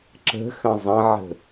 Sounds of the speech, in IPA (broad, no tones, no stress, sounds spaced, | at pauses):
ǁ ə̤ x ə̃ zˤ ə̃ ʕ ə̤